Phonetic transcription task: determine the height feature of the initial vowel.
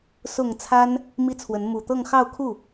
high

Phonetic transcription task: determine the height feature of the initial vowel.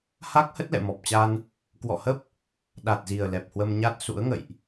low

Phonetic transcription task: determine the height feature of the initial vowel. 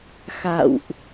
low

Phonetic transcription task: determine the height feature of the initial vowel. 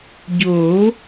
mid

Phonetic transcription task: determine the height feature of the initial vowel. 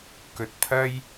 mid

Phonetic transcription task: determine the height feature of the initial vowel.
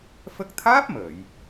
mid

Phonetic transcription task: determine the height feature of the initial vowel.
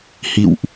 high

